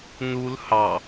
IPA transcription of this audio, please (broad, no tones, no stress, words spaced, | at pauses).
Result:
nul hɑ